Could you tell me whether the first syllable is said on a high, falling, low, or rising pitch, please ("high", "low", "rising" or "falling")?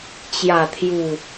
low